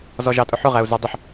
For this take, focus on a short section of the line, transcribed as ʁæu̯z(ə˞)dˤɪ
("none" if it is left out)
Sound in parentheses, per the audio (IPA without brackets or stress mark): ə˞